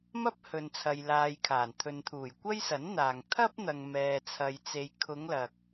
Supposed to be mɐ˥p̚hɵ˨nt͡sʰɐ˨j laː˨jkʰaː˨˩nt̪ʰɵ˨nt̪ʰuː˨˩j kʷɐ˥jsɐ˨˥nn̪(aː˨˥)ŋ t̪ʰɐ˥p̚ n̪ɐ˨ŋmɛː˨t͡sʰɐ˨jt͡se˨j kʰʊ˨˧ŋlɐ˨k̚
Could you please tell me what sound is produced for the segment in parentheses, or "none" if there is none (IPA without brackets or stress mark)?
aː˨